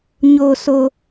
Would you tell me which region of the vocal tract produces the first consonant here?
palate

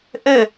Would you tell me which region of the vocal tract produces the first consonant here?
throat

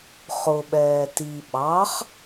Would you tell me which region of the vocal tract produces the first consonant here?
uvula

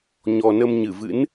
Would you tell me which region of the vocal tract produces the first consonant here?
palate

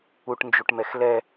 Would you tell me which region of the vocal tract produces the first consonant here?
retroflex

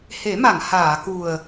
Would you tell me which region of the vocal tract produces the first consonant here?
throat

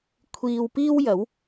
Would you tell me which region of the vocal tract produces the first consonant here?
velum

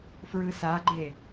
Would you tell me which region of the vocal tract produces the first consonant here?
lips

